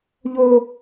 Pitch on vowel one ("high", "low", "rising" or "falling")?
high